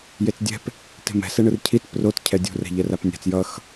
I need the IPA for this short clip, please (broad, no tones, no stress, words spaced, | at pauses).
jet͡sdʲɛ̤p | te̤mɛ̤ sɛɳɯrcʰit prot cʰɛdʲṳr ɛ̤ʎɛrapnʲa̤t͡s jʌx